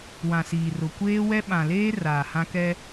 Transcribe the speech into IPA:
wã˨siː˨rʊ˨ kʷeː˦wɛ˦ ɓã˨leː˦ raː˨hã˦kɛ˦

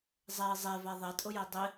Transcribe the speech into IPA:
zˤɛi̯ zˤeva ðˤɛtʼʊjɛ dˤɪ

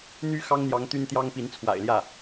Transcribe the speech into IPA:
n̪y˧˥ xɑ˥ŋn̪jɑ˧˥ŋ t̪y˥nt̪jɑ˥ŋpi˧˥n t͡sʰwa̰˨˩ɪ̯ljä˥˩

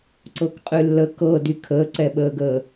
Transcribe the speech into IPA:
ǀɤkqʼylːə kɤdy kʰəːǀɛɓəːɡəː

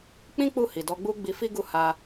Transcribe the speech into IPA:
k͡pĩ˦ k͡pu˦˨ hi˨dɔ˧ɡ͡bu˦ ɡ͡bi˧fi˦ɡu˦˨ ha˧

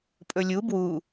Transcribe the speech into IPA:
pʼɵlʲu bwu

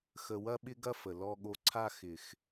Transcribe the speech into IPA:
xə˨wɐ˦ɓɪ˦ɡɐ˦ fə˨lɔ˦ɠo˦ ǀʰa˦xɪ˨x

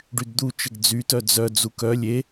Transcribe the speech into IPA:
ɖydd̪u t͡ʃəɡd͡zy tœd͡zœ d͡zukœ lʲe

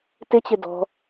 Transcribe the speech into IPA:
tɪt͡ɕɪ dɔ̤

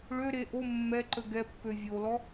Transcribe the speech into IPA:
ɭøɾe ʔo mːɛǃə ɡɛpːø vʲolɔ

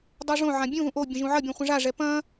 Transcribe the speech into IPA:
dˤoʐõʕã bʲũðũʔ obʲə̃ ʒũʕɐbʲɛ̃ χʷɐ̃ʐaʐɛ pɐ̃

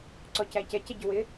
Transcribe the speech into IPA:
ǀɔcæcɛ cɛɟʊwɪ

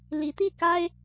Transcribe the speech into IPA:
li˨˦t̪i˥˨ka˦ɪ̯

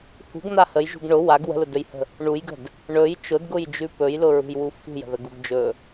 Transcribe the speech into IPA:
hṳɡn̪a həjʒṳɡ ɳʊ waɡ wə̤lʊdɵjhə̤ | ɳujɡə̤d | ɳɵj t͡ʃʊdɡʊjd͡ʒʉ pɵjlʊɹṳjwu fṳjə̤ðəɡuɡ d͡ʒɵ

